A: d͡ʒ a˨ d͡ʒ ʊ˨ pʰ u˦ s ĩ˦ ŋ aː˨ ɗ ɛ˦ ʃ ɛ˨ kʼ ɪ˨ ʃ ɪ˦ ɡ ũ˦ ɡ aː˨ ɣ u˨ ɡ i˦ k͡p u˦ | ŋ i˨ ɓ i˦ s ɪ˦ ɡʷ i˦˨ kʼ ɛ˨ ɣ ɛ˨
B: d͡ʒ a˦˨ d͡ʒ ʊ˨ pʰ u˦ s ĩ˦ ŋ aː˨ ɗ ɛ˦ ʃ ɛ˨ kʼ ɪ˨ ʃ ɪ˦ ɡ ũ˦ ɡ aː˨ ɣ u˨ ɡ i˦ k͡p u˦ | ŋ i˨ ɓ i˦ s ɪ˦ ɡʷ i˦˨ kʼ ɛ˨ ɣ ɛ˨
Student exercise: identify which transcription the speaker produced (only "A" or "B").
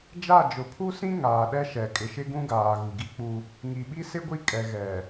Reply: B